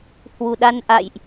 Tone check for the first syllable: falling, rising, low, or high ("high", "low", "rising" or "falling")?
low